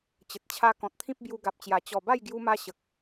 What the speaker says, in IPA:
t͡ɕ ə˨ t̚ t͡ɕʰ a˦ k ɔ̃˨ t̚ t̪ʰ ĩ˦ p̚ b j u˧ ɡ a˨ p̚ t͡ɕ j a˨˩ t͡ɕ ɔ˨˩ b a˥˧ j ɡ j u˧ m a˧ ɕ ə˨ k̚

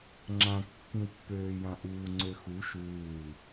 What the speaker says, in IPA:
ŋ͡ǁ ã kː ĩ w pː øː j ã ʔ uː ŋ͡ǀ ø x u ʃ uː

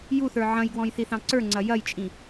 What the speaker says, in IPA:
j u θ ə˞ ʕ ɐ̃ j ɡ w ɔ̃ j θ i θ ɑ̃ ǀ ə˞ ŋ͡ǀ ɐ j ɐ j t͡ʃʼ ĩ

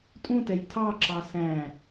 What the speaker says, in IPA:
tʼ ũ t ɛ j tʰ ɑ ǁ ɑ s æ̃

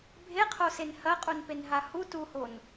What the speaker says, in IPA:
bʱ e qʰ o s e n h ɐ qʼ u n p e n ɦ a h u t u h o n

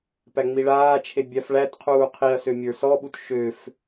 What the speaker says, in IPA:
p æ ŋ͡m i ɭ aː t͡ʃʰ e bʲ a f ɭ æ t qʰ uː qʰ i ɐ̯ s ø mʲ ə˞ s ɔ ɓ u t ʃ ø f

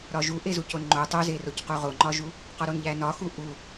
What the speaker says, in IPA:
ɾ ɒ ʒ u ʔ e z u c o n ŋ͡ǃ o tˤ o z e r o c q u ʁ o ŋ͡ǃ ɒ ʒ u | q ɒ ɾ o n ʎ æ n ɒ x u ʔ u

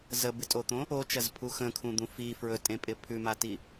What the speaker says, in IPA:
z ə b ɪ tʼ o t̪ õ | o t͡ʃ ɐ z pʰ u x ə̃ kʰ ũ d̪ ũ f i f ɹ ɵ tʼ ẽ pʼ ɪ pʰ ʉ m a t i

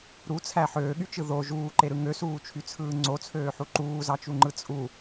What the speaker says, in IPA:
ɾ u t͡sʰ æ ħ øː ɠ y t͡ʃ ɯ ð o ʒ uː ǃ e ɾ ɯ ŋ ø s uː t͡ʃʰ y t͡sʰ ɯː ŋ͡ǀ o t͡sʰ øː ħ u ǃ uː z ɑ t͡ʃ u ŋ͡ǃ ɯ t͡sʼ u

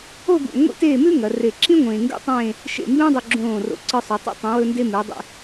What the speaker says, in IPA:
o˥˧ ɡ ṵ˧˩ ŋʷ ḭ˥ t eː˥˧ m ʉ˥ ŋ ɐ˩˧ r e˧˩ ǁ ĩ˥ ŋʷ ẽː˧ ŋ ɡ ṵ˥ tˤ ẽː˥˧ | ʃ ḛ˧˩ m b ẽ˥ dˤ ɵ˧ ɡ͡ǁ õː˧˩ r o̰˧˩ ǀ ɨ˧ sˤ ʉ˩˧ tˤ ṵ˥˧ tˤ ũ˩˧ w ɵ˧ n d e˧ m ʉ˩˧ dˤ ḛ˧

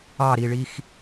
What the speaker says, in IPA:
ɑ ɾ i ɭ i x

